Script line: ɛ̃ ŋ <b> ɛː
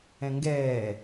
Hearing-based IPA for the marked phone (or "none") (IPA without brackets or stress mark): ɡ